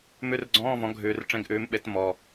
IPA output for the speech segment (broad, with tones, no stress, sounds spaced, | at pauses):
m ʉ˧˥˧ r ɡ͡ǀ ɔ̃ː˧˥˧ v ɔ̃˩˥ ɡʱ ʉː˨˩ r ʈ͡ʂ ẽ˧˥˧ ɡ ʔ ʉː˩˥ m ɓ e˩˥ t m ɔ˨˩